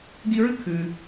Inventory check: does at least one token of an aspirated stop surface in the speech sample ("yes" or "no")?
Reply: yes